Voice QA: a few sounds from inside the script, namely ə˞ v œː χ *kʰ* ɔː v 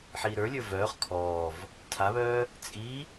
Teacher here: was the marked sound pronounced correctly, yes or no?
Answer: yes